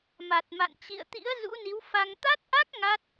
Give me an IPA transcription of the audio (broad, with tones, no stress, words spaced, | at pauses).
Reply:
ma˨˩t̚ ma̰˧˨n t͡ɕḭ˧˨ə̯t̪ḭ˧˥ə̯ zṵ˧˥ni˨˦wfa˧ŋ t̪a˦˥t̚ʔa˦˥k̚ ŋa˦˥t̚